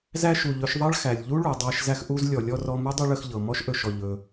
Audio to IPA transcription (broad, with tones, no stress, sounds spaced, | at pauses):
z æ˥ ʃ u˩ ʎ ɵ˧ ʃ ðˤ ɑ˥ ɭ x æ˩ lʲ ʎ u˥ ɭ u˩ dˤ æ˧ ʃ z æ˧ x ʔ u˧ z lʲ ɔ˩ lʲ ɔ˧ r ɔ˧ m u˥ dˤ ɵ˥ ɭ ə˧ x ʎ ɤ˩ m ɔ˥ ʃ ʔ ɵ˩ ʃ ɔ˩ ʎ ɵ˩